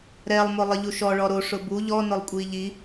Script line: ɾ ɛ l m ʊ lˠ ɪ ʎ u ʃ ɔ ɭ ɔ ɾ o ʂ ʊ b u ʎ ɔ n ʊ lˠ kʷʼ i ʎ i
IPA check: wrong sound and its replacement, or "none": l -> lˠ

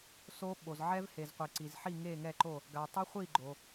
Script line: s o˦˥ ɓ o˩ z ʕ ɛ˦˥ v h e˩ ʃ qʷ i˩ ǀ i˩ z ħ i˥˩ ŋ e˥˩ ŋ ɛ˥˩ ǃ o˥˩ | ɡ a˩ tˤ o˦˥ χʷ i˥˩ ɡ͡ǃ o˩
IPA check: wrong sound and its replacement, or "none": ʃ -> z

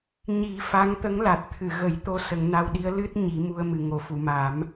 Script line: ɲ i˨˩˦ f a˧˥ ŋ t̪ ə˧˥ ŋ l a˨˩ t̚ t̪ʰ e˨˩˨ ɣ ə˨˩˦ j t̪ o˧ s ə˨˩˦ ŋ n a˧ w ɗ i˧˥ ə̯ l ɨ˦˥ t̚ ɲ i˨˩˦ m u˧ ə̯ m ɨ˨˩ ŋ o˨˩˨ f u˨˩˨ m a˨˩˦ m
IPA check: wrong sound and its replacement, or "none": e˨˩˨ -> ɨ˨˩˨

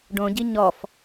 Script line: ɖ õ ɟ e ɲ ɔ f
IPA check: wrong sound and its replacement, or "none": e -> i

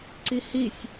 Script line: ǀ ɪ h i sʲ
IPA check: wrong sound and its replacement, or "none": ɪ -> i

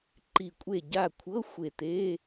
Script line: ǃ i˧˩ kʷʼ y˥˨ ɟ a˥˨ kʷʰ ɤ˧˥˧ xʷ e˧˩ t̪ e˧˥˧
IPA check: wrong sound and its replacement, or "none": y˥˨ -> e˥˨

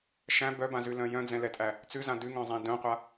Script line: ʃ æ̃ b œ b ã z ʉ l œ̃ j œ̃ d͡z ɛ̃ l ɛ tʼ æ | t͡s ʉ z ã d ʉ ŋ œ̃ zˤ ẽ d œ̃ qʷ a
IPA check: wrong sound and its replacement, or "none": none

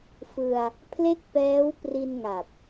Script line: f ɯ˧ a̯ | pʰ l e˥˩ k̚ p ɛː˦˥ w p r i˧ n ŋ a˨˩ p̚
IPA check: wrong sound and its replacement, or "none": none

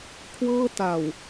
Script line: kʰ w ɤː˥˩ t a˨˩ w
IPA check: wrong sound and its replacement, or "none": none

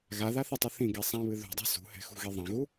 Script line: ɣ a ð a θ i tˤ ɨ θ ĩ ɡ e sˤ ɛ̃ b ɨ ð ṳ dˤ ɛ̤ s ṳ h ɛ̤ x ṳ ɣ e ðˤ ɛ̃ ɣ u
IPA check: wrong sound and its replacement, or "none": b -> β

